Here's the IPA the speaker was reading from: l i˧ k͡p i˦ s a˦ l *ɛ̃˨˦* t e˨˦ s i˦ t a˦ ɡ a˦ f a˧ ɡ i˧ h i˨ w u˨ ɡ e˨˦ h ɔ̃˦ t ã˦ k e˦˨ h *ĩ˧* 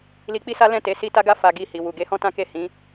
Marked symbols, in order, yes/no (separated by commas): no, no